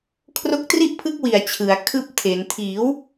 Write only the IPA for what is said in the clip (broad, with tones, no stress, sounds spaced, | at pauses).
kʰ r o˦˥ k̚ t r i˥˩ ʔ pʰ ɯ˦˥ k̚ w i˨˩ a̯ t͡ɕʰ ɯ˩˦ a̯ kʰ ɯː˥˩ p̚ tʰ e˩˦ n tʰ iː˩˦ w